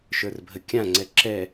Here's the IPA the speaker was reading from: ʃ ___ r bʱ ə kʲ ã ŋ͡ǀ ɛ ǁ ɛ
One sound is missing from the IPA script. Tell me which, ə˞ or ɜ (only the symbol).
ə˞